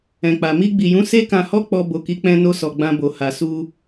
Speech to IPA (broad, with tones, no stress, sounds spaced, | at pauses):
ɛ̃˨ k͡p a˨ m i˧ ɡ͡b i˨ j ũ˨˦ s e˦ k ã˧ h ɔ˦ k͡p ɔ˧ b o˨ k i˨˦ k͡p ɛ̃˧ n o˧ s ɔ˨ ɡ͡b ã˧ b o˨ h a˨ s u˧